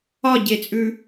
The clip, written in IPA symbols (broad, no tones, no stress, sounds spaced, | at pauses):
ɒ ɟ e t͡sʼ ʉ